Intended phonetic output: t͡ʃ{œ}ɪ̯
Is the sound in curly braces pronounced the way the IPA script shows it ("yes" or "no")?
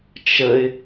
no